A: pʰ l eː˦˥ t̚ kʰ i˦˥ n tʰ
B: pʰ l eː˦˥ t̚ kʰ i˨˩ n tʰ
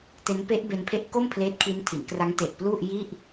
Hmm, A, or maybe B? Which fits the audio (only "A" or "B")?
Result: A